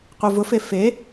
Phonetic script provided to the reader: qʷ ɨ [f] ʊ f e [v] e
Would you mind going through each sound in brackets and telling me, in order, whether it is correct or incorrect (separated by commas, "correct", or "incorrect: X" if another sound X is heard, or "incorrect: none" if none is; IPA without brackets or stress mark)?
incorrect: v, incorrect: f